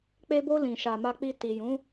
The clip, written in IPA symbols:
k͡pe˧bo˧ lĩ˨ʃa˨ma˧k͡pi˧ ti˨jũ˨˦

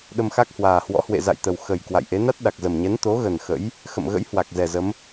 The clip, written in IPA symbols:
ɗə˧mxa˦˥k̚hwaː˨˩hwɔ̰˧˥ hwḛ˧˨za̰˧˨jt̪ə˨˩w xə˨˩j kwa̰˧˨jʔe˨˦ na˦˥t̚ɗa˨˩k̚zə˨˩mɲɛ˨˦n t̪o˨˦ɣə˨˩n xə̰˧˥j | xə̰˧˨mɣə̰˧˥jhwa˨˩k̚ zɛ˨˩zə˨˦m

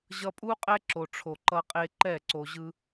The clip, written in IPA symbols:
ʑʌ˧pʼu˦ qʼɛ˦ǁo˨ʈ͡ʂʰo˨ ǃʌ˧qʼe˧ǃɛ˦˨ ǀo˨ʑɯ˧

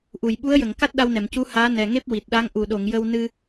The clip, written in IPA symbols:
ʔu˨˩˨j ɓu˧˥ə̯jə˨˩˨ŋka˦˥t̚ ɗa˧wnɛ˨˩˨mcu˧˥ haː˧˥ nɛ˨˩ ŋe˦˥p̚ wi˨˩t̚ɗa˧˥ŋ ʔu˨˩˨ɗo˨˩˨ŋ jə˧w nɨ˧

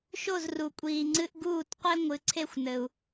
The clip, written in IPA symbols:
ʃo˥˩zru˩kʷʼiː˩ŋ͡ǀɨ˧ʔ ɡuː˥˩tqʷe˥ ŋʷɨ˩˥ǀʰe˥˩xʷnɘ˩u̯

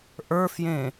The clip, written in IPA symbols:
ʔə˞fjẽ

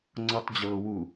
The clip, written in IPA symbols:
ŋ͡ǀɔtˤd͡ʑɤːwu

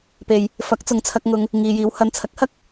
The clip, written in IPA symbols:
pe˧j | fɐ˨˥k̚t͡sʊ˨˧ŋ t͡sʰɐ˧k̚ ŋʊ˨ŋ | ŋiː˨jiː˨˧whɐ˧n t͡sʰɐ˨˥k̚hɐ˥k̚

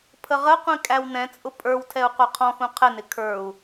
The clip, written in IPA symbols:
pʰəʁəqʷĩ kʼæwnɛ̃t͡sʼʊ pʼə˞wtʰɛu̯ qʷə˞qʰɔ̃xũ qʰɪnɪ kʰə˞u̯

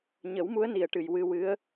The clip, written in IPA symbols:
ɲə˨˩˦wmu˧˥ə̯ni˨˩ə̯ʈɨ˨˩j wɨ˧wɨ˧˥ə̯

